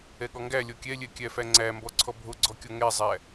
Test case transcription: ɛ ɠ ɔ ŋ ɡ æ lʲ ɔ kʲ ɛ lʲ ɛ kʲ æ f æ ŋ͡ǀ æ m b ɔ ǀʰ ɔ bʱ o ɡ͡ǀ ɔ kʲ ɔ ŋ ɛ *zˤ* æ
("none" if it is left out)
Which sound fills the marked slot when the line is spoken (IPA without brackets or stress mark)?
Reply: zˤ